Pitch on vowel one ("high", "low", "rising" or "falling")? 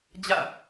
falling